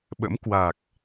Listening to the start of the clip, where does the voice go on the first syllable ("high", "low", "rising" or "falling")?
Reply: rising